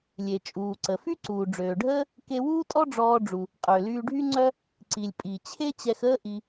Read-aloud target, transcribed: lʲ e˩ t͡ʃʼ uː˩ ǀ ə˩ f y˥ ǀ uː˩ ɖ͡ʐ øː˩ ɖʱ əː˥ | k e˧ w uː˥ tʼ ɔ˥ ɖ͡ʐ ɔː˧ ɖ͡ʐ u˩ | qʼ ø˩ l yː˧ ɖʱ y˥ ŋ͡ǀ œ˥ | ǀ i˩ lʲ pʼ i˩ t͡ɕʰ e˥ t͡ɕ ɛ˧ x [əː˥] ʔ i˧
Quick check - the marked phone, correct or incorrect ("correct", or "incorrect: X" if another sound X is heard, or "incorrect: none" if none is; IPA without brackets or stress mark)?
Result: correct